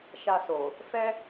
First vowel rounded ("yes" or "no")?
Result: no